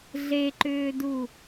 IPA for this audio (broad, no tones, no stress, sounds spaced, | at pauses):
ɮ e ǃ ʏː d u